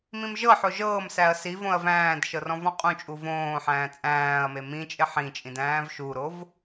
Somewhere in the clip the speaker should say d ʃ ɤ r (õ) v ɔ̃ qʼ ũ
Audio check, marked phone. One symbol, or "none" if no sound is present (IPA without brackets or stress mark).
ɔ̃